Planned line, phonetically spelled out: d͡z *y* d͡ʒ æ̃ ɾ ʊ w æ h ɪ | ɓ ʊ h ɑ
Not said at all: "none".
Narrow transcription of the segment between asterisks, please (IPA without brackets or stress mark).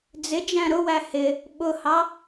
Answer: ɪ